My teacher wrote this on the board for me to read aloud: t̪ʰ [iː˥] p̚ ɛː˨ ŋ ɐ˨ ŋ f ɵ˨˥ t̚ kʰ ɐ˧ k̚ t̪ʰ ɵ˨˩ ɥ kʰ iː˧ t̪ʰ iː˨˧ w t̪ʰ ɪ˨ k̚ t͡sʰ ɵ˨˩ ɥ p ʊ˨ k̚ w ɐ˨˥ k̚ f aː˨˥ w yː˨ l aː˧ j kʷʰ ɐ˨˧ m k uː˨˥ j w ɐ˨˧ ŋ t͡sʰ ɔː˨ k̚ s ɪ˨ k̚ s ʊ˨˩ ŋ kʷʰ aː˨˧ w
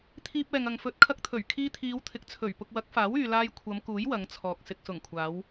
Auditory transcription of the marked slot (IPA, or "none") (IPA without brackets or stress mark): iː˧